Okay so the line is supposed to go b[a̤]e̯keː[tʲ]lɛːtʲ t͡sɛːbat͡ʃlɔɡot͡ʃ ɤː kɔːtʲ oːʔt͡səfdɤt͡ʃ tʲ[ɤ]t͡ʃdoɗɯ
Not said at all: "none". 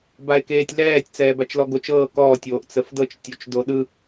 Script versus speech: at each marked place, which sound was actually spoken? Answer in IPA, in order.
a, tʲ, o

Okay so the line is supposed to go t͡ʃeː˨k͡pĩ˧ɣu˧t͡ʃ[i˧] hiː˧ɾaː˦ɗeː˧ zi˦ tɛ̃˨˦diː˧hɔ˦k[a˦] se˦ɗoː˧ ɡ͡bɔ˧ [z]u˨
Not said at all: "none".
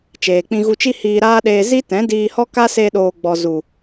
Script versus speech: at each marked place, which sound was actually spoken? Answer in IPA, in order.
i˦, a˦, z

